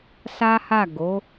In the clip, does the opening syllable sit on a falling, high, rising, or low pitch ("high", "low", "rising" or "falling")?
high